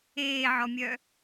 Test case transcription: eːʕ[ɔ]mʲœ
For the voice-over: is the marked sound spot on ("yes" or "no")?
yes